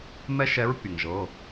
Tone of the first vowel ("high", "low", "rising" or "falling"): high